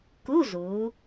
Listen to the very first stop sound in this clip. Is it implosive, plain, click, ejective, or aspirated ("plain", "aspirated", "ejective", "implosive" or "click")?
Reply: plain